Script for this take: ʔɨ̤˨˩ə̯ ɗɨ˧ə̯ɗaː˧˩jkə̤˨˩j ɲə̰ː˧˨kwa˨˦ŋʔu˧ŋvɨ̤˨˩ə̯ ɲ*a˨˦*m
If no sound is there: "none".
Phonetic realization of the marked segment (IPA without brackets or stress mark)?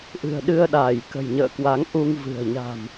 a̤˨˩